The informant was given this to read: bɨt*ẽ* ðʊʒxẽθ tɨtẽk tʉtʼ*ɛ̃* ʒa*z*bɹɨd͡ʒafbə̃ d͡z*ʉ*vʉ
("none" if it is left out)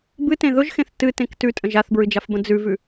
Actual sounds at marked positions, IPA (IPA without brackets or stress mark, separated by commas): ẽ, ə̃, θ, ʉ